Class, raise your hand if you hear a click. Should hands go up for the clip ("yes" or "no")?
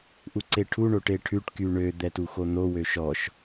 yes